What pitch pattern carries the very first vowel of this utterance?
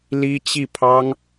high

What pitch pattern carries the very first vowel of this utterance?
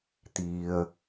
low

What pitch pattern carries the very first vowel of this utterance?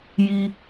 high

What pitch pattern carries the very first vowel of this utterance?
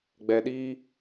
low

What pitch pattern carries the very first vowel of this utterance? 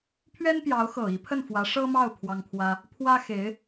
high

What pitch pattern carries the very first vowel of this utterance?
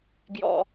low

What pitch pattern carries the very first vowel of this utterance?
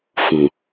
low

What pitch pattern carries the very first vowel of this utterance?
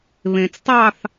low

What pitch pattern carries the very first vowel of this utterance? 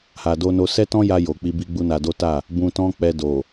low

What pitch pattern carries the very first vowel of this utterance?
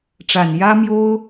low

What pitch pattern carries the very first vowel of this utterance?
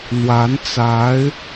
rising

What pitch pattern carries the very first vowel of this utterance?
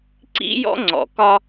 high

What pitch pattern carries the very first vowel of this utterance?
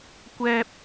high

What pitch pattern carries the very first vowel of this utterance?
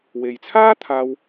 low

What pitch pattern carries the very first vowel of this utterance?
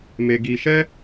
low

